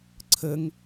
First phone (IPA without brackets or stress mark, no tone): ǀʰ